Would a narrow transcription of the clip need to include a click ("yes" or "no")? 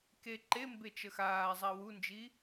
yes